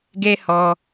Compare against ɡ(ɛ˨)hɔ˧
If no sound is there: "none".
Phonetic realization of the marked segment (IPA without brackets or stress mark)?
ɛ˦